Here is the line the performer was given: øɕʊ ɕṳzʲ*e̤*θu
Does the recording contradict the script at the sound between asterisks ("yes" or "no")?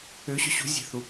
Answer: no